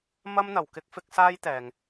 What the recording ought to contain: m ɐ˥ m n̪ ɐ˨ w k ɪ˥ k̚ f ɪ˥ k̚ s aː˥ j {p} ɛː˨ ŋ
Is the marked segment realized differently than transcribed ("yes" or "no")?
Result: yes